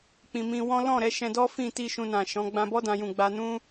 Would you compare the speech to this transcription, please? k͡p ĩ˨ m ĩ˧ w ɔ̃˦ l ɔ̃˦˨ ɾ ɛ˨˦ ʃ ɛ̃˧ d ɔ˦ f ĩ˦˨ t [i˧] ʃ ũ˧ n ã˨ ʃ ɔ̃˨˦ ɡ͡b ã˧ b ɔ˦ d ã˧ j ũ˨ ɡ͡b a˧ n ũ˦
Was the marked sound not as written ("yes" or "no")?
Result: no